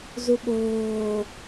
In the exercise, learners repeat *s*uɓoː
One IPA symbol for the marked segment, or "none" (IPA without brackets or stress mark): z